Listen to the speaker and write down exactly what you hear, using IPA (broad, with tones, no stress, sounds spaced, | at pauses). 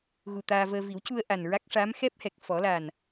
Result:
ɣ u˨˩ t̪ aː˧ v əː˧ v i˨˩˦ w c u˧ ə̯ ʔ a˨˩ n ɹ a˦˥ k̚ ʂ aː˧˥ m x ɛ˦˥ p̚ h ɛ˨˩ k̚ f ɔ˨˩˦ l a˨˩ n